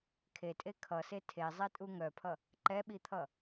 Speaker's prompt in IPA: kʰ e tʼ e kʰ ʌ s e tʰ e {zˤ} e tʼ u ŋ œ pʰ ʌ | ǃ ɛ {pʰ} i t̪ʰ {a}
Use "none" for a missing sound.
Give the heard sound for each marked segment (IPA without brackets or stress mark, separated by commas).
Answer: zˤ, ɓ, ʌ